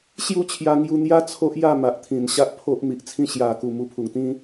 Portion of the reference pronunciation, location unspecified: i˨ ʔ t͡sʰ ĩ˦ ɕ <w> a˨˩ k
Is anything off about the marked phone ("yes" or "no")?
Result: yes